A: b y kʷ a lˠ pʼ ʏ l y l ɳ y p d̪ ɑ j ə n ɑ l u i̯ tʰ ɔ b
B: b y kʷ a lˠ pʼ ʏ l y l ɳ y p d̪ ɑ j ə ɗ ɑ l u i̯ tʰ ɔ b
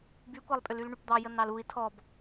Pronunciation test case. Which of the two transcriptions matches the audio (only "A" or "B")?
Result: A